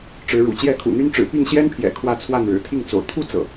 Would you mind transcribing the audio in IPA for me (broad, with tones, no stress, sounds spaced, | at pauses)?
ʈ͡ʂ ɻ̩˨˦ ɻ ṵ˨˩ t͡ɕ j ɛ˥˨ kʰ ṵ˨˩ n̪ y˦ n ʈ͡ʂ ɻ̩˨˩ p i˥˨ ŋ ɕ j ɛ˦ n pʰ j ɛ̰˨˩ kʰ w ä˥˨ t͡sʰ w a˥˨ n ɻ ɻ̩˨˩ t̪ʰ i˥˨ ŋ t͡s o̰˨˩ ʊ̯ t̪ʰ u˥˨ t͡s ɤ̰˨˩